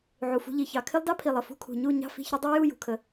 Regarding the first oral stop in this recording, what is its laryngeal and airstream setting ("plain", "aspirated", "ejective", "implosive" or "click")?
aspirated